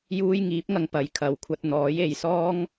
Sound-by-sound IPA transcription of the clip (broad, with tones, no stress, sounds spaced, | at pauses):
j uː˥ j ŋ iː˨˥ p̚ ŋ ɐ˧ ŋ p ɐ˨ j kʰ ɐ˨ w kʷʰ ɐ˧ t̚ n̪ ɔː˨˥ j e˨ j s ɔː˥ ŋ